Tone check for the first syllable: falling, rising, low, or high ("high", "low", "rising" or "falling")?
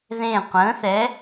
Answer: falling